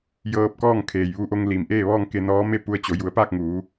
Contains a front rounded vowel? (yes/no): no